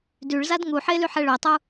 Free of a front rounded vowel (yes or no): no